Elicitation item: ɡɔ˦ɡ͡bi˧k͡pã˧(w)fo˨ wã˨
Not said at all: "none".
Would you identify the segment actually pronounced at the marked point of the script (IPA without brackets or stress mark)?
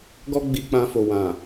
none